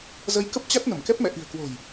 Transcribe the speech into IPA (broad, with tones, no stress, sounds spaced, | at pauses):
z ə˨˦ j k ə˦˥ p̚ t͡ɕ a˦˥ t̚ n ə˧˩ m k ɛ˦˥ p̚ m ɛ̰˧˨ ʔ i̤˨˩ ə̯ k w o̤˨˩ j